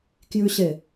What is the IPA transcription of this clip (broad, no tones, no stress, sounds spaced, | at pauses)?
k j ʉ ɕ e